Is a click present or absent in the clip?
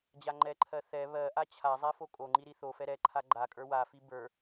present